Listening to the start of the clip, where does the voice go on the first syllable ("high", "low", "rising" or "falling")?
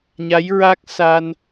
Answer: rising